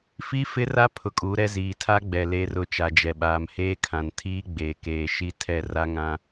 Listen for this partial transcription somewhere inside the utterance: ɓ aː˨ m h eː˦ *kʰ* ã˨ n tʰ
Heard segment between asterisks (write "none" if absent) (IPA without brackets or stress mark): kʰ